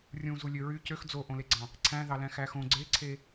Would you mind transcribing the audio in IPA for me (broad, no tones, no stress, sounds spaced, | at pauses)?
rʲ ũ z u lʲ ø ɹ y c ø x d͡z o ʔ õ l e ɡ͡ǀ ɑ̃ | ǀʰ æ̃ ð ɑ l æ̃ x æ x õ ɡ͡ǀ e ǀʰ e